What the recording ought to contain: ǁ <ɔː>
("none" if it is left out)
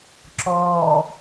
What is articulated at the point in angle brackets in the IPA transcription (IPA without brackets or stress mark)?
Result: ɔː